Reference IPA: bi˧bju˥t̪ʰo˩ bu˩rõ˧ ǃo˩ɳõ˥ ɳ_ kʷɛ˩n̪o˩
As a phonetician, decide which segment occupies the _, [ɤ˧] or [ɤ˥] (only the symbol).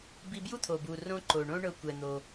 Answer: ɤ˧